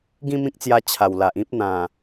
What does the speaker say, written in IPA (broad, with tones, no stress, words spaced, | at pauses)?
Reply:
ɡĩ˥˧mĩ˦k̚t͡sja˧ t͡ɕʰa˨˩wla˨ʔ ĩ˦p̚ n̪ã˨˩